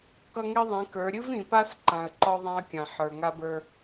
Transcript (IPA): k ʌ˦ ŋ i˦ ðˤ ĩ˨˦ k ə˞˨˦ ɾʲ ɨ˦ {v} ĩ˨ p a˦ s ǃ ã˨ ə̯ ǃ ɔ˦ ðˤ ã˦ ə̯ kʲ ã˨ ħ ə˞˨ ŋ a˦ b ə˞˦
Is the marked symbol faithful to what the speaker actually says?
yes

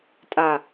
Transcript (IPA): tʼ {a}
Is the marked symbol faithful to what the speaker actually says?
yes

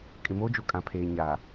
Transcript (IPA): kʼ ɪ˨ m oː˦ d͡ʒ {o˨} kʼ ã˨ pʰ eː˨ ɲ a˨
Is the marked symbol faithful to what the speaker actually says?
yes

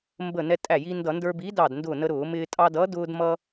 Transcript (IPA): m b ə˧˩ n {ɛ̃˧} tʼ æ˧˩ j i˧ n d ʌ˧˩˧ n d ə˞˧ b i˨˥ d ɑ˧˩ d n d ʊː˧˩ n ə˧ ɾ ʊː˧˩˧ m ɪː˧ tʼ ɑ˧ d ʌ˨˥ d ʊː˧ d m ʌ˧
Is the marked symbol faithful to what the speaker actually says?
no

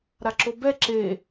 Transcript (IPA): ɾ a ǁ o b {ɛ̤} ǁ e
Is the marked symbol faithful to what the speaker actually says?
no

